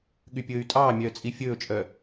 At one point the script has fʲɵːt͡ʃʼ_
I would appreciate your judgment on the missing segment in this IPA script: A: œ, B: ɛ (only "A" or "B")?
A